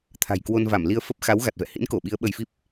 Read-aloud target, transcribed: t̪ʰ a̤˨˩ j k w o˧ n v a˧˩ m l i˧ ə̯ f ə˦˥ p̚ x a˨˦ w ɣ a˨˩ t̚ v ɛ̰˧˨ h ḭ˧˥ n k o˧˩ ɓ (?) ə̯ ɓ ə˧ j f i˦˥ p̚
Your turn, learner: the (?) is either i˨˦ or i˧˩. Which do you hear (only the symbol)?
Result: i˨˦